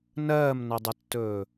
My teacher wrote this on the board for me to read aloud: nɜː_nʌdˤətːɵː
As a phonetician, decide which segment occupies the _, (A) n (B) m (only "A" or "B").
B